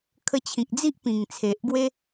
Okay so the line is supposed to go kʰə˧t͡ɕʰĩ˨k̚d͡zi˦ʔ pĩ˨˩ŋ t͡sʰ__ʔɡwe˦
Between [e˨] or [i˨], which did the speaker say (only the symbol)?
e˨